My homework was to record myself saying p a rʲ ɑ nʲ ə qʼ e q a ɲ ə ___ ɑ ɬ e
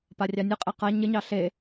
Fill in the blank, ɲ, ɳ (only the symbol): ɲ